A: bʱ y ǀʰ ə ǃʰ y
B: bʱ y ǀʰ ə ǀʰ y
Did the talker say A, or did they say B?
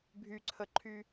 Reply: A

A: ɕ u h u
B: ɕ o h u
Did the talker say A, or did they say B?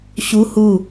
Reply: A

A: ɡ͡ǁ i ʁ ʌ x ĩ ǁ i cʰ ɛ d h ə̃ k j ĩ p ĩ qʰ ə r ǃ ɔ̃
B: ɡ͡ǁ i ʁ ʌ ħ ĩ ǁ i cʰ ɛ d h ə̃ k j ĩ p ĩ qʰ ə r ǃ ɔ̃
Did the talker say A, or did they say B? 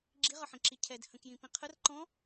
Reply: B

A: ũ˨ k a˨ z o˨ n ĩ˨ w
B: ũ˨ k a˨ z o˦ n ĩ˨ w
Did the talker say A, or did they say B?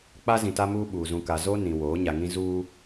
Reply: B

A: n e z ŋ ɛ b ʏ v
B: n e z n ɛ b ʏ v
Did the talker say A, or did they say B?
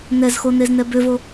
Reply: B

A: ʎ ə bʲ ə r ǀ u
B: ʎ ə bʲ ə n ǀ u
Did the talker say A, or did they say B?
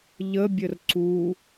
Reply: A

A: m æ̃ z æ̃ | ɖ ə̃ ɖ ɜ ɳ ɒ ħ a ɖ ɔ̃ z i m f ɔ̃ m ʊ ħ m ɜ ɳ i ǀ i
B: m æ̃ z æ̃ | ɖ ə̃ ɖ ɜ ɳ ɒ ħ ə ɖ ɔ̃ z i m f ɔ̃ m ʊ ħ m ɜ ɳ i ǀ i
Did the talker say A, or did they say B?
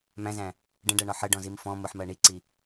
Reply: B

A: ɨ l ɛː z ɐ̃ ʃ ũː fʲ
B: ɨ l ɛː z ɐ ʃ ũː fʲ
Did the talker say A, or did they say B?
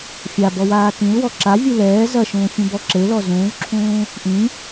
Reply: B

